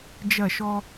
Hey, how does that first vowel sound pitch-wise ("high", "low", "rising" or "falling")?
falling